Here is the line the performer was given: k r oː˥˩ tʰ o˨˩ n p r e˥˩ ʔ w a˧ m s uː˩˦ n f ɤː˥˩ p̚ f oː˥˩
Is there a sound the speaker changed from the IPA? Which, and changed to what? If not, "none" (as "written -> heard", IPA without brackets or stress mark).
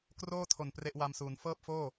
none